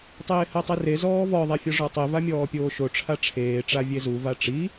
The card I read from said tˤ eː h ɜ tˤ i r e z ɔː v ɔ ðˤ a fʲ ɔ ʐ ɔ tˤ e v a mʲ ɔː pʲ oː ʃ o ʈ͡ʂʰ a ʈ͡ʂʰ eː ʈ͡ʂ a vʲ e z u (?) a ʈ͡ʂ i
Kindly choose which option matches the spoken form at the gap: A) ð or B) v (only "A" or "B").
B